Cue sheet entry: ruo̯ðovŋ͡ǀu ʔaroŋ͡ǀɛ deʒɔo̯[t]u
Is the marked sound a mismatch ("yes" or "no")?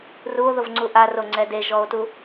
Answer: no